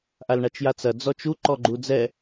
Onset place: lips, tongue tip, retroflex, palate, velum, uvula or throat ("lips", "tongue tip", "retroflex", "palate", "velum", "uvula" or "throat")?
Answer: throat